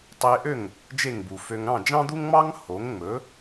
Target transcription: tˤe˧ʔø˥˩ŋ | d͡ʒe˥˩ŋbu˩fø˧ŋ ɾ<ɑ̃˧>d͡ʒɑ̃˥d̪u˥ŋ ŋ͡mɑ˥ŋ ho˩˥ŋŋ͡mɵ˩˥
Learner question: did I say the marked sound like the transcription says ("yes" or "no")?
no